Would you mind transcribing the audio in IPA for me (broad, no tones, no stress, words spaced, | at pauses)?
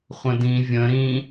χʷə̃dĩ vʲə̃ ɾĩ